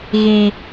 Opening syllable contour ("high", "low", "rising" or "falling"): high